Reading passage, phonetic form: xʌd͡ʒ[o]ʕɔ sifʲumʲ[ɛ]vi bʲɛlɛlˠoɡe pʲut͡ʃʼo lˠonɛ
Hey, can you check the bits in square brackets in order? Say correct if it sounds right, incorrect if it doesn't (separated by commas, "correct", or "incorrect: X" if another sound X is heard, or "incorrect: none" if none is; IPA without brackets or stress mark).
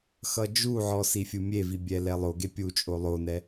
incorrect: u, incorrect: e